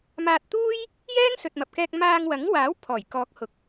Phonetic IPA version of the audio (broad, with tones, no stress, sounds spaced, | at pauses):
m aː˧ t̚ t̪ uː˥ j | j ɛː˥ ŋ s ɵ˨ t̚ m ɐ˨ p̚ k ɛː˧ k̚ m aː˧ ŋ w ɐ˨˥ ŋ w aː˨˥ w pʰ ɔː˨˩ j k ɔː˨˥ k̚ h ʊ˨ k̚